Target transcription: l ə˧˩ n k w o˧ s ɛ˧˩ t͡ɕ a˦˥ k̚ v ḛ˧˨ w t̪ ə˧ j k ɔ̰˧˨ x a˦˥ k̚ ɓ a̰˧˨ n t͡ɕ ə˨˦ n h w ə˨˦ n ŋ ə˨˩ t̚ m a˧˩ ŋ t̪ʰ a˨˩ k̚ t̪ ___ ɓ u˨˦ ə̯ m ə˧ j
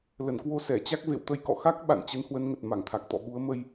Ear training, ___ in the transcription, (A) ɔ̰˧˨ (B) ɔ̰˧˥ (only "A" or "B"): A